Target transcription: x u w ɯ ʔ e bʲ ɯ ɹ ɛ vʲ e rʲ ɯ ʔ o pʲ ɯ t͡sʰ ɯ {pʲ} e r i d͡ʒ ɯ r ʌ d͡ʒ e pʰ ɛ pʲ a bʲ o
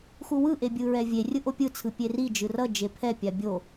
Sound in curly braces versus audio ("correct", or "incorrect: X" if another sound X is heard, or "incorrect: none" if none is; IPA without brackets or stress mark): correct